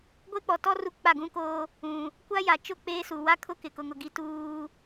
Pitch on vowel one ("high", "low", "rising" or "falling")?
high